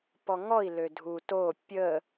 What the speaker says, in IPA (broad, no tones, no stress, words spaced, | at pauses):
pɔŋɔi̯ lødʱu to pʲə